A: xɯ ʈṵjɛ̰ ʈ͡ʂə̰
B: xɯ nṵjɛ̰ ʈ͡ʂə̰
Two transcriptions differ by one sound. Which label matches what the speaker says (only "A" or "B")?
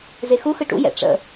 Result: A